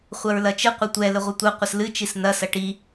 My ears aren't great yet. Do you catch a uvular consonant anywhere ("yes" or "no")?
yes